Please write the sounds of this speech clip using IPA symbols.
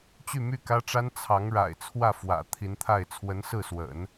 t͡ɕ y˥˧ m y˥˩ k ä˥ ʈ͡ʂ a˥ n t͡sʰ ɑ˧˥ ŋ ɻ a̰˨˩ ɪ̯ t͡sʰ w ä˥˩ f w ä̰˨˩ t̪ʰ i˧˥ n t̪ʰ a˥˩ ɪ̯ t͡sʰ w ə˧˥ n s ɹ̩˥˩ s w ə̰˨˩˦ n

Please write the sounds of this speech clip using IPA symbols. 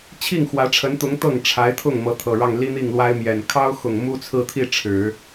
t͡ɕʰ i˥˩ ŋ x w ä˧˥ ʈ͡ʂʰ ə˧˥ n t̪ ʊ˧˥ ŋ t̪ ɤ˥˩ ŋ ʈ͡ʂʰ a˧˥ ɪ̯ t̪ʰ ʊ˥˩ ŋ m ɤ˧˥ t̪ʰ ɤ˨˩ ɻ ɑ˥˩ ŋ l i˥ n̪ i˥˩ ŋ l w a˥ ɪ̯ m j ɛ˨˩ n kʰ ɑ˥ ʊ̯ x ʊ˨˩ ŋ m u˥ t͡sʰ ɹ̩˥˧ t̪ʰ i˥˩ ʈ͡ʂʰ ɻ̩˨˩˦

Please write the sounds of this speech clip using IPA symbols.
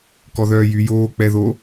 k ɔ ð œː j y j oː k͡p ɛ ð o

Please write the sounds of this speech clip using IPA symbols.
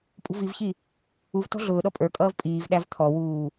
pʼ ṳ v i v ç i | u v t ɔ̤ ɮ ʊː ɗ ɔ pʼ ə˞ kʼ ʌː v pʼ iː v ɗ æ v t̪ʰ ɔ w uː

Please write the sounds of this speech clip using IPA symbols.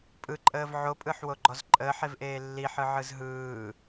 pʼ ɯ ǃʼ əː v ʕ o pʼ ɯ ħ w o ɡ͡ǃ ɔ z ǃʼ əː ħ e v ʔ eː lː i ħ ɯ ʕ ɯ z ɦ ɯː

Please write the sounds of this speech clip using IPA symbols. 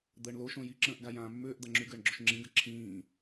d̪ əː ɳ l o ʃ õ j i ǁ ə̃ː ʔ ɡ a j ãː mː ʏː ʔ d̪ a ŋ͡ǁ y ɡ əː ɳ ɡ͡ǁ o ʃ ŋ͡ǁ ĩ ɡ ə ǁʰ ĩː

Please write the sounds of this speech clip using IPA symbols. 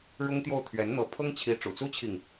ɻ ʊ˥ ŋ t̪ j o˥˩ ʊ̯ t̪ʰ ɥ ɛ˧˥ n n̪ ɤ˧˥ pʰ ɤ˥ ŋ t͡ɕʰ i˧˥ ʈ͡ʂ ṵ˨˩ t͡s u˥ t͡ɕʰ i˨ ŋ

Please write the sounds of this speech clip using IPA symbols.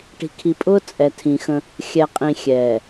ʈ i̤˨ kʰ i˨ pʼ ʊː˦ t͡sʼ ɛ˨ tʰ ĩ˨ x ə̃˦ | xʲ ɛ˨ qʼ ĩ˨ xʲ ɛː˨

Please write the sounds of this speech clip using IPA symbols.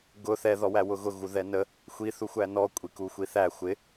ɡ ʊ θ ɛ ð ɔ w æ w ʊ ɣ ʊ ɣ u ð ɛ n ə | xʷ i θ u xʷ æ n ɔ kʷʼ i k u xʷ i θ æ xʷ ɪ

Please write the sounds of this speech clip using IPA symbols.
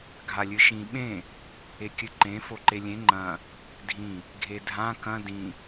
ɡʱ a lʲ ɨ ʃ ĩ ɓ ẽ | e kʲ ɨ ǃ ẽ f o ǃ e lʲ ẽ ŋ͡ǃ ɐ̃ | dʱ ĩ | ɡʱ e dʱ ã k ɐ̃ d ĩ

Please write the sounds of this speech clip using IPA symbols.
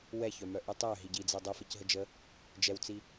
w ɛ ç œ m œ ʔ ɯ tˤ œ ɦ i ɟ i d͡z ɛ dˤ ɯ f ɘ c ɦ ə d͡ʒ ə | d͡ʒ ɛ w t͡s i

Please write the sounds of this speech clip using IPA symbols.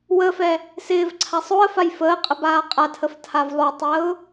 w ə f ɛ | s ɪː v ǀʰ a sˤ o ə̯ f a j f əː qʼ ə b aː qʼ a tʰ ə f tʰ a v lˠ o tˤ əː ʊ̯

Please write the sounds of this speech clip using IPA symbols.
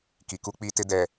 k i˨ k u˦ k͡p iː˦ t ɪ˦ d ɛ˨

